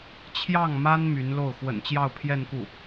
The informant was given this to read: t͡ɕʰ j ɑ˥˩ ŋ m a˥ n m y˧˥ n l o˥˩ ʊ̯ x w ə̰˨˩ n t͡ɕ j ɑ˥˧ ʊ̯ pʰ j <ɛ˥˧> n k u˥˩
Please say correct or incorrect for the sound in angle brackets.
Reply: correct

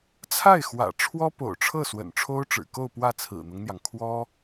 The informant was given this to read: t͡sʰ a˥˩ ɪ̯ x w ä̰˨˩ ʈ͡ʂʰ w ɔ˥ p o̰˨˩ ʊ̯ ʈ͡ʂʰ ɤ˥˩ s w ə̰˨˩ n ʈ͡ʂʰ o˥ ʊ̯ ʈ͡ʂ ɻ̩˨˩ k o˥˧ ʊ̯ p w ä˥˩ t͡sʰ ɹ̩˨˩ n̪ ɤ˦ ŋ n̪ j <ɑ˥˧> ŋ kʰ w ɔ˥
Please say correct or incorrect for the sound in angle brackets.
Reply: incorrect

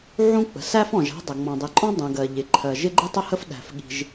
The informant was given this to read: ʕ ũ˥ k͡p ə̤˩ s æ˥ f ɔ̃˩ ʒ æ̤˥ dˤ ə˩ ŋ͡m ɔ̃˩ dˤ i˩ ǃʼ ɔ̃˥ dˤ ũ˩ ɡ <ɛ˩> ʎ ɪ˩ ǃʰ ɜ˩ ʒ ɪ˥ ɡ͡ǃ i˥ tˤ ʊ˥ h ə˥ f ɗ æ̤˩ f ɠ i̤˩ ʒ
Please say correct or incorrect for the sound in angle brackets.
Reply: incorrect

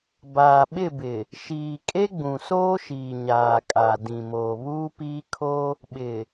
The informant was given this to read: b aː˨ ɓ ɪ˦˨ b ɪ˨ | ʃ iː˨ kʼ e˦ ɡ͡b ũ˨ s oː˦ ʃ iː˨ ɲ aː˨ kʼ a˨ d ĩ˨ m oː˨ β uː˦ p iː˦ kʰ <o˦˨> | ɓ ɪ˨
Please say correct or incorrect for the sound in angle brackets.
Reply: incorrect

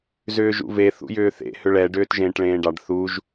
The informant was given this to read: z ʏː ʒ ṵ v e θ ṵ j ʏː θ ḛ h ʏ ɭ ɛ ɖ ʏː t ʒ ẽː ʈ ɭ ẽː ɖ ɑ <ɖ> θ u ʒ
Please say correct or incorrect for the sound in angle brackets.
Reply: correct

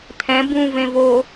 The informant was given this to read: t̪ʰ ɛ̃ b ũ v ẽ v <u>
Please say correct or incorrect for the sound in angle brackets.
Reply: incorrect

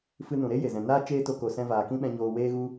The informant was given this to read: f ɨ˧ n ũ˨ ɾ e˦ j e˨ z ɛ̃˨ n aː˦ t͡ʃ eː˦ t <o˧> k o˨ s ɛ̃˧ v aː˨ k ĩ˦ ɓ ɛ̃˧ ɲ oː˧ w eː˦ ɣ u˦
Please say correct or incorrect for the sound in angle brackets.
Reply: correct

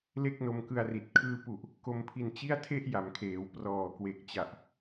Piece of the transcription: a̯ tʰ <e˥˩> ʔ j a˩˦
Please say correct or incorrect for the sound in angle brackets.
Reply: correct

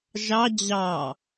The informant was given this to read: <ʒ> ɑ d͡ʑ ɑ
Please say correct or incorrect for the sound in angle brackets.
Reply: correct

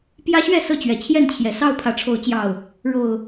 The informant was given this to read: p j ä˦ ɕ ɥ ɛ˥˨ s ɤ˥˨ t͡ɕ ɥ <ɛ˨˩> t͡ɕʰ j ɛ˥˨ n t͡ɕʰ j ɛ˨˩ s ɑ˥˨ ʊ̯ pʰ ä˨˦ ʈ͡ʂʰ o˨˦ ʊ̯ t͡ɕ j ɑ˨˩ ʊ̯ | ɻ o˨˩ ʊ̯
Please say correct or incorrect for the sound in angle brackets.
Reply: correct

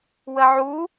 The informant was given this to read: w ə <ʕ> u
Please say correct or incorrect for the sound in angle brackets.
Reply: correct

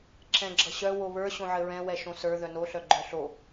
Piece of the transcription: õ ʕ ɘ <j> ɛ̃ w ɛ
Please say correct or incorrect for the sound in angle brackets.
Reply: incorrect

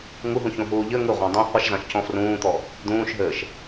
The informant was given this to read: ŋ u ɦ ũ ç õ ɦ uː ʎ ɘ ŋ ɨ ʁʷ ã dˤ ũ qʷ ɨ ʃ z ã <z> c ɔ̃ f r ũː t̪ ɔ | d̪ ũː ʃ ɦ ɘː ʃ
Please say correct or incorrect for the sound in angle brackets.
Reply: incorrect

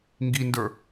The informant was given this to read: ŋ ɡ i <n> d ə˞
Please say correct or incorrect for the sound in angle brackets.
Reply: correct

